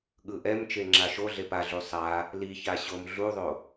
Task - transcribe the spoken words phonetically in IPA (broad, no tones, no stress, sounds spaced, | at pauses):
ɠ ɯ ʔ ɛ m t͡ʃ e ŋ͡ǁ a ʃ o ɮ e p a ɮ u sˤ a | l i ç a ɕ o m ɮ u ðˤ o